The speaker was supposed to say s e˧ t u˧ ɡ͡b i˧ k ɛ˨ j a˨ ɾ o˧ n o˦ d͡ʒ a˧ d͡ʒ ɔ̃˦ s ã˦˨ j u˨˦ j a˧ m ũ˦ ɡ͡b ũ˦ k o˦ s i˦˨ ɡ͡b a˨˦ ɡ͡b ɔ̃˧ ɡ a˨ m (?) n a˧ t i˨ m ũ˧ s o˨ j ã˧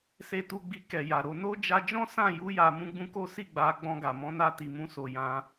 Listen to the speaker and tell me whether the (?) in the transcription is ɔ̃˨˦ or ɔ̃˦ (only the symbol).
ɔ̃˨˦